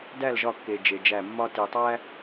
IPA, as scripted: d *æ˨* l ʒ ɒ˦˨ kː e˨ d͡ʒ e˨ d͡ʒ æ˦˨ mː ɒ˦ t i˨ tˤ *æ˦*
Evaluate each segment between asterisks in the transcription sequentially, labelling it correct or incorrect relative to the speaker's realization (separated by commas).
incorrect, correct